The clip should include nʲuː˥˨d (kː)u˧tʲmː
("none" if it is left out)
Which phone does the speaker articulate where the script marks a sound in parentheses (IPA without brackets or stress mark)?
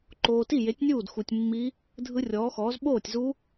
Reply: x